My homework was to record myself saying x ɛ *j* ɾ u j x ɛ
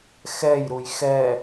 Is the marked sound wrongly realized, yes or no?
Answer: no